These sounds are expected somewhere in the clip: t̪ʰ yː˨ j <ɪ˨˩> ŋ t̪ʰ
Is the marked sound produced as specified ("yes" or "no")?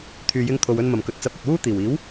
no